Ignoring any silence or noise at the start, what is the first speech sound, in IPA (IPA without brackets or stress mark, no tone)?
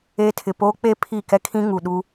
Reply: eː